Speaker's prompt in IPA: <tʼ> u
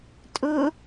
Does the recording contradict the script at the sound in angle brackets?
no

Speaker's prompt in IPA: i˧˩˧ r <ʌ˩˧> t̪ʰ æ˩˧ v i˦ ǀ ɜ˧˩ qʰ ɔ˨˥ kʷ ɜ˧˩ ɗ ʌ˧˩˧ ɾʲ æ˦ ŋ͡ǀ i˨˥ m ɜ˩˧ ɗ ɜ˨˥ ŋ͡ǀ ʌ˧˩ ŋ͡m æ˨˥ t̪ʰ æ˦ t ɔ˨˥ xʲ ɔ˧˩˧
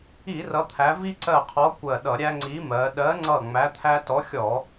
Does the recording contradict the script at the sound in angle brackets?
no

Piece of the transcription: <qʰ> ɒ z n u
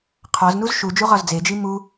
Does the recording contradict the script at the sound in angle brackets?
no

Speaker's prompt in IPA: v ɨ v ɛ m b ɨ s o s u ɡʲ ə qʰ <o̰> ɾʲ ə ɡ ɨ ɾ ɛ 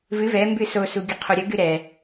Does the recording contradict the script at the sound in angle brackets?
yes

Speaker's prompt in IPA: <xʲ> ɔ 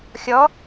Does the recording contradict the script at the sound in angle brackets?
no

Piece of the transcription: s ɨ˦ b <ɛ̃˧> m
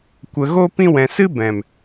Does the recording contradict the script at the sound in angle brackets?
yes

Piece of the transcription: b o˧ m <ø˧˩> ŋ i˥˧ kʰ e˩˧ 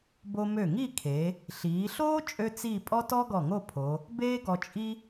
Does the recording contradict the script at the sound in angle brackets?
no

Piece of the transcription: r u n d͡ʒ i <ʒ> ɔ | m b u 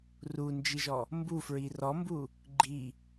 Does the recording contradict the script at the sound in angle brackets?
no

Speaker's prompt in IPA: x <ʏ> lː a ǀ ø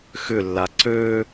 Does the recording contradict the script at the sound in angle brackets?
no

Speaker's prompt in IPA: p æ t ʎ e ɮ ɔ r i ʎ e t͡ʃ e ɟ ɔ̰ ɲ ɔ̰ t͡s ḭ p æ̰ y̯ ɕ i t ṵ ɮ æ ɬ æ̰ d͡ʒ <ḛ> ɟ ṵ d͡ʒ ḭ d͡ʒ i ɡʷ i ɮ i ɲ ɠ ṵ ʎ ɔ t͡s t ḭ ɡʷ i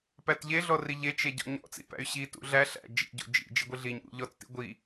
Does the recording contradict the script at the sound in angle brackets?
yes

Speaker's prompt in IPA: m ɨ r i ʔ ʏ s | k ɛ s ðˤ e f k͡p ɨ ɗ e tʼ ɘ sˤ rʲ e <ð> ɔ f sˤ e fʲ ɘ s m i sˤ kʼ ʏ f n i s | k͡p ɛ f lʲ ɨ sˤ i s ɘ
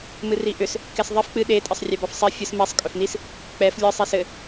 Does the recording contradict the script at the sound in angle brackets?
yes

